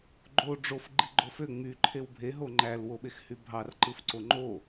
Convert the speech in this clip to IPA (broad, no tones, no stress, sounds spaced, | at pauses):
ɡ͡ǃ o ɖ͡ʐ o f ɡ͡ǃ i ɡ͡ǃ o f ø ŋ͡m y ǃʰ e w bʱ e ɦ o ŋ͡ǃ æ l w o ɓ e x h y bʱ ɑ r ǃ ɯ f ǀ o ŋ͡ǃ o